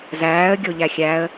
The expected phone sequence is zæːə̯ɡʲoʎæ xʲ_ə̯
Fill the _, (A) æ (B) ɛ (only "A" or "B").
A